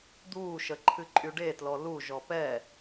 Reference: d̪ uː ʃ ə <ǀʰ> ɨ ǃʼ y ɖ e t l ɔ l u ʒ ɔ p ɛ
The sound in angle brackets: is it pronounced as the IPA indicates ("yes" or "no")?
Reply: no